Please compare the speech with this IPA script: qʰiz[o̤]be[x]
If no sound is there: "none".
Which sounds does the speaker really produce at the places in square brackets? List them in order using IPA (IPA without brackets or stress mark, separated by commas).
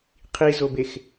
o, x